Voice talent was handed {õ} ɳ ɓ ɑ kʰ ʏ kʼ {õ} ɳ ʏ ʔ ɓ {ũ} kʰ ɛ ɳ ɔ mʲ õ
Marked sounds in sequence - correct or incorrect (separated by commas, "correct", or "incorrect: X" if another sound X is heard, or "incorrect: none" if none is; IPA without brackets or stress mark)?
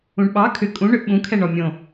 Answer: incorrect: ũ, incorrect: ũ, correct